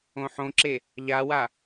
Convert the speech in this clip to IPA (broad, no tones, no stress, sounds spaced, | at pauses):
õ ħ õ ǁ e | ʎ a w a